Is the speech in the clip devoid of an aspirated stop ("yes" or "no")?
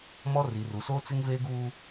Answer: yes